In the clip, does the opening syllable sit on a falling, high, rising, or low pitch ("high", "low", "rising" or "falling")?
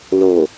low